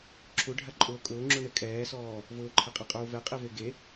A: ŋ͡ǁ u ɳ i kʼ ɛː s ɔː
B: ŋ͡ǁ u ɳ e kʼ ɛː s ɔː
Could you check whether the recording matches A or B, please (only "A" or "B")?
B